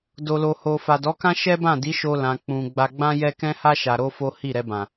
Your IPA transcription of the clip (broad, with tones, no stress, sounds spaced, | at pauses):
d o˨ l o˨ h o˨ f a˨ d ɔ˨˦ k ã˦ ʃ ɛ˦ b ã˦˨ d i˨˦ ʃ o˧ l ã˨ k͡p ũ˨ ɡ͡b a˧ ɡ͡b ã˦ j ɛ˦ k ɛ̃˦ h a˦ ʃ a˧ ɾ o˦ f o˦ h i˦˨ ɾ ɛ˧ b ã˨